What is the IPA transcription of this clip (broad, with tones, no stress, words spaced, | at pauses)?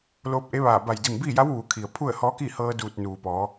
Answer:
loː˧p̚ʔe˧˥ʋaː˧˩ ba˧˩jdi˧˩mbiː˥˨ja˧˥w ʋuː˩˧kʰi˩ə̯ pʰu˥˨ə̯hɔː˧˥ki˥˨hɤː˧ duː˧˩t̚ nuː˩pɔː˩˧